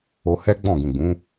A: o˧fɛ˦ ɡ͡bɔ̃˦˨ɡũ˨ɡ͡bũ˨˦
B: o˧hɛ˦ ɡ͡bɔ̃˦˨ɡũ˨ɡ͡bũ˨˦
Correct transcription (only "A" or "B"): B